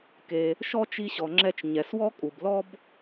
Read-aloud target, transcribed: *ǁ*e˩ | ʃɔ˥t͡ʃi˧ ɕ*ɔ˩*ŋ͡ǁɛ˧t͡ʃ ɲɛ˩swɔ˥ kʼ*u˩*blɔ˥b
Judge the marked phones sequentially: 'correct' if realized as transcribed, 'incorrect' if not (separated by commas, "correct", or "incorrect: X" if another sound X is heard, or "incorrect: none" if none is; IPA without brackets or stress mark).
incorrect: k, correct, correct